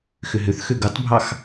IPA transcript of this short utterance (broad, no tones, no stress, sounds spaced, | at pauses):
x ʏ ɦ ʏ θ x ø ɡ u tˤ bʱ ɑ x